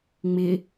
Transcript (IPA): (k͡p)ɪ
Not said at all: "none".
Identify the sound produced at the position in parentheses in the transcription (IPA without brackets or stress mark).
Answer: ŋ͡m